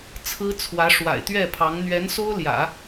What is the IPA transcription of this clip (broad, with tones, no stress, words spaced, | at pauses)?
t͡sʰɹ̩˥t͡sʰwä˧˥ ʂwa̰˨˩ɪ̯t̪ɥɛ˥˩pʰɑ˧˥ŋ n̪ɥɛ˧˥nso˥ʊ̯ljä̰˨˩˦